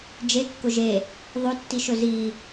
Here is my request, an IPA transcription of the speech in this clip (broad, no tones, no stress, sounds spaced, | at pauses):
d͡ʒ e kː ʊ ʒ e | ðˤ ɵ tː i ʃ ɵ z i